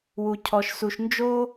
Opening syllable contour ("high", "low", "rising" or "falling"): low